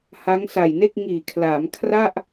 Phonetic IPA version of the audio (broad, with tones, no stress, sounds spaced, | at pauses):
h a˦˥ ŋ s a˨˩ j n e˥˩ k̚ ŋ iː˨˩ kʰ l aː˩˦ m kʰ r a˥˩ ʔ